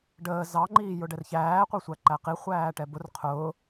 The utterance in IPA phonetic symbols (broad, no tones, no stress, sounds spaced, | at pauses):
ɖ əː z ɑ ŋ͡ǃ iː j ʊ ɖ ɛ r ç æː qʷ ɛ sʷ æ ǃ æ q i χʷ æː ʈ ɛ b ʊ r qʰ ʊː